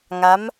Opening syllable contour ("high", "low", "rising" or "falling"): rising